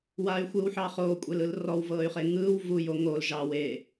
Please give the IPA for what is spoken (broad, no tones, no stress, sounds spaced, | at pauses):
w a y̯ xʷ ɯː w ħ ɑ χ oː kʷʼ e l ɯ l r ɔ w v ɤː y̯ χ e ŋ ɯː w v u j o ŋ o l ʒ ɑ w e